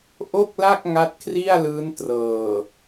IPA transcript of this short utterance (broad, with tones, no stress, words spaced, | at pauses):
ʔo˥˩k̚la˥˩k̚ ŋa˦˥t̚kʰri˥˩a̯lɯː˦˥n trɤː˨˩